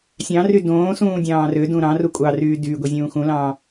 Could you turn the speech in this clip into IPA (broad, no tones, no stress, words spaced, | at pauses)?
sʲɑ̃ry dõːsũː dʲɑ̃ːrødũ ɾɑ̃ru kʷʼɑryː dyːɡʷi zʲũːxũlɑ̃ː